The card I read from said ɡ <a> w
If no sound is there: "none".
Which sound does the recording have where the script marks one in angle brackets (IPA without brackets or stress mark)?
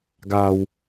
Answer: a